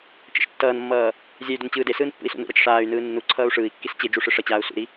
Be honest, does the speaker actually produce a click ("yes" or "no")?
yes